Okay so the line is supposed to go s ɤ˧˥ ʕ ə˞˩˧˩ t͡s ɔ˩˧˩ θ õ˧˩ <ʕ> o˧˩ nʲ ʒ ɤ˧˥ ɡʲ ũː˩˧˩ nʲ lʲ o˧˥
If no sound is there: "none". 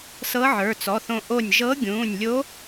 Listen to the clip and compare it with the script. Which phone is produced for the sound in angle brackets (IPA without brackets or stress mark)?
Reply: ʔ